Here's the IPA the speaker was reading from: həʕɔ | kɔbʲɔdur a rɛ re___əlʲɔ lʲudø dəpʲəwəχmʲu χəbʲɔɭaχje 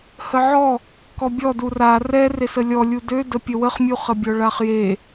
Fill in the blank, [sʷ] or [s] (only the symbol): s